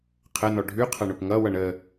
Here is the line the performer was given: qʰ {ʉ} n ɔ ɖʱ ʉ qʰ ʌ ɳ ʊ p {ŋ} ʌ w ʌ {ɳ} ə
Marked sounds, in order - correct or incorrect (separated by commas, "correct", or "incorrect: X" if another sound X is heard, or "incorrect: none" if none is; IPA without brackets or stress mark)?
incorrect: ə, correct, correct